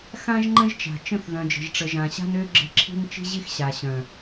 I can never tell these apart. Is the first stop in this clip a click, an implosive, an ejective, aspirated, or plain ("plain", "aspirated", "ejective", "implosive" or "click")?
click